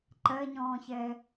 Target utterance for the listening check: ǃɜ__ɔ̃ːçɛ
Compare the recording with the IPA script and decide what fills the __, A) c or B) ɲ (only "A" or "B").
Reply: B